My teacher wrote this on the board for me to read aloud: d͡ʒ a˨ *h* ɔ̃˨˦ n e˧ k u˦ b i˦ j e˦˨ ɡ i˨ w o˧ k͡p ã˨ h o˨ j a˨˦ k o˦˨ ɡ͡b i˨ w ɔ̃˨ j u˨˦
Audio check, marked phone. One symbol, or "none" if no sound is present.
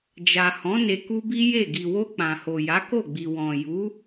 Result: h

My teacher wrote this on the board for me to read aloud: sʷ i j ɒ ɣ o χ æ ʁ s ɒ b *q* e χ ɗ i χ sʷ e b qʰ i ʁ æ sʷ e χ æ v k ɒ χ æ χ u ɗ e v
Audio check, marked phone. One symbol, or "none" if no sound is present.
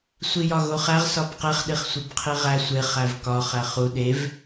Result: q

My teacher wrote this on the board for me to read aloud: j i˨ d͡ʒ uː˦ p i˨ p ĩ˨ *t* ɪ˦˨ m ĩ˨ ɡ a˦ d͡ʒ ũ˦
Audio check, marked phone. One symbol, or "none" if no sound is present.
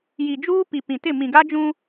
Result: t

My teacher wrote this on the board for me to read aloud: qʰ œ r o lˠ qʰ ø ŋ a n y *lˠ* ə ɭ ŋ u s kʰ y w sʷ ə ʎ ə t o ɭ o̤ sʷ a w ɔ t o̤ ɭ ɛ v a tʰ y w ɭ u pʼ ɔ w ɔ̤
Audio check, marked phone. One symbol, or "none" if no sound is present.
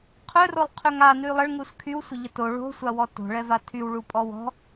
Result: lˠ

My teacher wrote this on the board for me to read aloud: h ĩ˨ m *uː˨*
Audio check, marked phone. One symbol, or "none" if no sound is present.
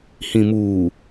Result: uː˨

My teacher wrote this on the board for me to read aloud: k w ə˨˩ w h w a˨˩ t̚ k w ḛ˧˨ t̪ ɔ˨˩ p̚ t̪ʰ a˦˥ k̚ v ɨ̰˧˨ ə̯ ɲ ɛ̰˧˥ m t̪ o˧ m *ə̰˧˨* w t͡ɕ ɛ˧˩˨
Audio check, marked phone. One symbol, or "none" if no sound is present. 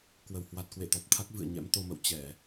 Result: ə̰˧˨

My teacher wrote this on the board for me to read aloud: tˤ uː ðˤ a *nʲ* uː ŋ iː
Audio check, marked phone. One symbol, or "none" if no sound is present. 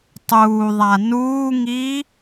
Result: n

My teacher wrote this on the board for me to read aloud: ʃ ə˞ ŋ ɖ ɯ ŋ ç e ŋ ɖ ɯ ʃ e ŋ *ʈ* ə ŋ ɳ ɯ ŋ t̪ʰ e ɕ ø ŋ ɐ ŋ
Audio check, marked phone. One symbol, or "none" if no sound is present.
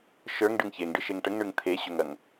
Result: ʈ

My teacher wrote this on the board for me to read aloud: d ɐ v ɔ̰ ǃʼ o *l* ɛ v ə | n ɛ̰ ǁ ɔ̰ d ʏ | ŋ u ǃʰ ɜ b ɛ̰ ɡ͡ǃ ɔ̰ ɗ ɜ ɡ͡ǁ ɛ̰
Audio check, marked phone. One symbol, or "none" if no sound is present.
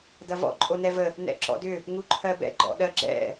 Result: n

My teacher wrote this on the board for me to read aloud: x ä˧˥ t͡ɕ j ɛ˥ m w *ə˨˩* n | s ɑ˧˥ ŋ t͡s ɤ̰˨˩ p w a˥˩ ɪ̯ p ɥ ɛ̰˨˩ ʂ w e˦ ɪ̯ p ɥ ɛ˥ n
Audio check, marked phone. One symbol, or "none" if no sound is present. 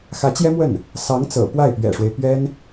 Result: ə˥˩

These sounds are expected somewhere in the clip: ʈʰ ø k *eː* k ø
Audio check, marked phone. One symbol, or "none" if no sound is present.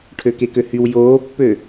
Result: e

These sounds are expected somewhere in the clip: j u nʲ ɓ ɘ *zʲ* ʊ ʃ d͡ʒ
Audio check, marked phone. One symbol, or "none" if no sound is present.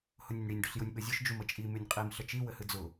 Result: zʲ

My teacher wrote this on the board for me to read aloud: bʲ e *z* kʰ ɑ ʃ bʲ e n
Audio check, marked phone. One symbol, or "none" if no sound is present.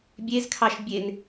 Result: z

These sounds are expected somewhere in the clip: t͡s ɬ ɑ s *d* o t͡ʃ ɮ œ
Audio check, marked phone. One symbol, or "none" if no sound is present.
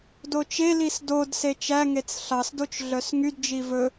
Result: d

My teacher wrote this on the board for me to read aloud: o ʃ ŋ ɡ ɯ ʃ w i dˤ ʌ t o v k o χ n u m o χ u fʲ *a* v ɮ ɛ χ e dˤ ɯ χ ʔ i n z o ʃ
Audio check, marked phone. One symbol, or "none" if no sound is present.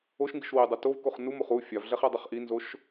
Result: a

